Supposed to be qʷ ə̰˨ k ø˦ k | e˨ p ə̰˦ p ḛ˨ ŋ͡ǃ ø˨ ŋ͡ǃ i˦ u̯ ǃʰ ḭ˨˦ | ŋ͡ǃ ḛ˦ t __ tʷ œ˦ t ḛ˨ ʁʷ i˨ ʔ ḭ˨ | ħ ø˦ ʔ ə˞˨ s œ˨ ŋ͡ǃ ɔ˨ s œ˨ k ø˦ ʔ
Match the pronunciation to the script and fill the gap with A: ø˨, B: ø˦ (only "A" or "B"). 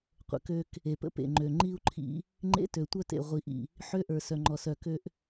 A